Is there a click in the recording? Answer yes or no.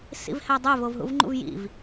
yes